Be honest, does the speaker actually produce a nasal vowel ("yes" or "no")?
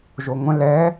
yes